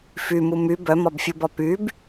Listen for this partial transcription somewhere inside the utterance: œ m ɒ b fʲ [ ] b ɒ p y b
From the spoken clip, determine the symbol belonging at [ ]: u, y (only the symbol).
u